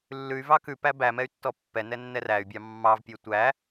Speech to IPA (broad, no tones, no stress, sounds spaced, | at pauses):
lː ʉ y̯ v ɑ k ʉ p æ b æ m ɛ y̯ tː ɔ pː ɛ n ɛ nː ɛ r æ y̯ bʲ ɑ mː ɑ v pʲ ø tʷ æ